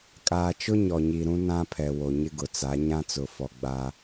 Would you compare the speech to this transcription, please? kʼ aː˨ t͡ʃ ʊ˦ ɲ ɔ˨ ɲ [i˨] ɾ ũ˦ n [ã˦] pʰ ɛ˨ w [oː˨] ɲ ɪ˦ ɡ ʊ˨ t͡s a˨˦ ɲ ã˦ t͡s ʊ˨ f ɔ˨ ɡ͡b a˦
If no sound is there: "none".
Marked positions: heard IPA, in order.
i˨, ã˦, o˨

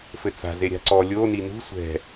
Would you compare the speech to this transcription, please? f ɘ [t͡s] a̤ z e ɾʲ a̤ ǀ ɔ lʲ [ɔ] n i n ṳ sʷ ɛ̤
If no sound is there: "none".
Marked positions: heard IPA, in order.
t͡s, o

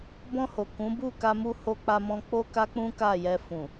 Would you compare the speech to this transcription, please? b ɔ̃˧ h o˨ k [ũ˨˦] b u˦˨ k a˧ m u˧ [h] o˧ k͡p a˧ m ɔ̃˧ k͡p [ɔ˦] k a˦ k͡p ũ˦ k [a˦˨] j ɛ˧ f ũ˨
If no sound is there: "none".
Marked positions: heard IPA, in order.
ũ˨˦, h, o˦, a˦˨

